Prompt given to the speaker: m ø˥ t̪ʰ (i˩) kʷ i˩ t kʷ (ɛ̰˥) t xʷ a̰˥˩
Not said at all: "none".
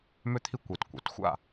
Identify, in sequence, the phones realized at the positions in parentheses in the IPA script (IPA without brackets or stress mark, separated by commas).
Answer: i˥, ɛ̰˩˥